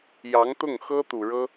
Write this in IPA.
j ɑ˧˥ ŋ t̪ ʊ˥˩ ŋ x ɤ˥ t̪ u˨˩ ɻ ɤ˥

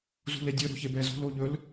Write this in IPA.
z ṳ l e dʲ ə˞ ɾ o̤ ç e b ɛ z o̤ l o ʎ ɵ l

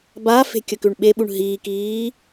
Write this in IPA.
b a f e̤ kʲ ə k ʉ ɳ ɓ e ɓ u ɳ ɦ iː k iː

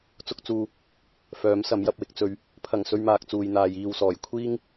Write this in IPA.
t͡s ʊ˧ k̚ t͡s uː˨ | f œː˨˥ m s ɐ˨˥ m j ɐ˧ p̚ w ɪ˧ k̚ t͡s ɵ˧ ɥ | pʰ ɐ˨˩ ŋ s ɵ˧ ɥ m aː˨ k̚ t͡s uː˨ j n̪ aː˨ j iː˨ w s ɔː˨˩ j kʷʰ iː˥ ŋ

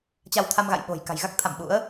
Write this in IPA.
t͡ɕ a˧ w t̪ʰ a˧ m ɣ a̰˧˨ j ɓ o̤˨˩ j k a̤˨˩ j ɣ a˦˥ k̚ t̪ʰ a̰˧˨ m ɓ ṵ˧˥ ə̯

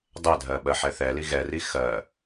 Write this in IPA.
dˤ ɛ dʱ ɜ ɓ ɜ ħ ɛ θ ɛ l i ɣ ɛ r i x ɜ

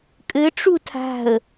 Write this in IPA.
kʼ ɘ ʈ͡ʂ u tʰ a̤ ə̯

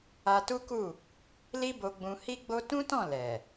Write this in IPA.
a˧ t u˦ k u˦˨ | l i˦ b o˧ ɡ͡b ũ˧ h i˦ ɡ͡b o˦ t ũ˦ t ɔ̃˦˨ l ɛ˨

